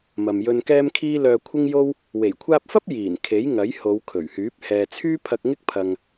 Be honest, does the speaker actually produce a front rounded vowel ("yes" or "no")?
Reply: yes